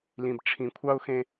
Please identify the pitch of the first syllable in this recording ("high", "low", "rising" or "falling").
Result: low